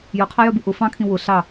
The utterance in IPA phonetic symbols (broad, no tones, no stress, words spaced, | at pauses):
jʊqʰajœbu ʔʊ fɑ̃kʰĩ wʊ ɬɑ